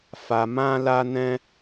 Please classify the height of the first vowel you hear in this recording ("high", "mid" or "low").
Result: low